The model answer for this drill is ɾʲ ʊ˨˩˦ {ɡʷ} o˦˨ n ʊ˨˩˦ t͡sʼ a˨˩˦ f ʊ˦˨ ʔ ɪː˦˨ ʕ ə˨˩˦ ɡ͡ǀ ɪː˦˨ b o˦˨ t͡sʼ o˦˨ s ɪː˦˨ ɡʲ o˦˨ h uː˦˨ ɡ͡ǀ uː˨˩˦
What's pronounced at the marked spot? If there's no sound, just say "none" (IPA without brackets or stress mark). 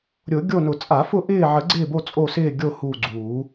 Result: ɡʲ